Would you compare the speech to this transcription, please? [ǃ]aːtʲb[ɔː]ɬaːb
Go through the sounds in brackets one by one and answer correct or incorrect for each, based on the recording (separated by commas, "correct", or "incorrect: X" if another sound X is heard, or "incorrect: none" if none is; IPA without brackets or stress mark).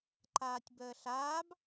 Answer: correct, incorrect: əː